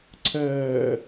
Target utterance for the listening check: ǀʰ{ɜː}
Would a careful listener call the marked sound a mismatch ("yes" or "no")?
no